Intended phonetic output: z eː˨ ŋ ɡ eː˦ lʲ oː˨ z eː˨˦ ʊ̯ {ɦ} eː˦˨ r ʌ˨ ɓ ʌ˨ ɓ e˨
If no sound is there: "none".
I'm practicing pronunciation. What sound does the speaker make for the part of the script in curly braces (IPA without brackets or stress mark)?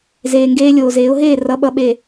ɦ